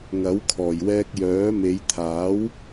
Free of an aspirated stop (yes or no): no